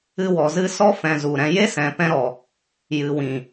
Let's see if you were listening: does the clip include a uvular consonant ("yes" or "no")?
no